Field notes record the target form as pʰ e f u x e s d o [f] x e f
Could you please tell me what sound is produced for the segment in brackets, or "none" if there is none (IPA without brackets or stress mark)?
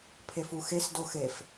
none